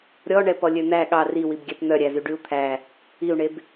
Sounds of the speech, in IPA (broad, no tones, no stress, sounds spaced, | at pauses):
ɾʲ ɔ ɳ ɛ p ɔ lʲ ø n̪ æ ɠ ɑ r i w i b ɡʲ æ p n̪ œ ɾʲ æ z y ɖ y u̯ t̪ʰ æ | i u̯ ɳ e b